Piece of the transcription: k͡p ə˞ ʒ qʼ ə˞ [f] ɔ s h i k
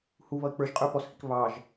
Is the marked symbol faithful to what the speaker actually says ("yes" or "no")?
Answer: no